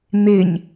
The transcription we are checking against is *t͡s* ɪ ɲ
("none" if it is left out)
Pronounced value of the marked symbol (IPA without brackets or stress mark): n̪